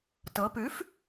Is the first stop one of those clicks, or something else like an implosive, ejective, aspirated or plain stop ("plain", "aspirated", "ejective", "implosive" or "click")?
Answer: plain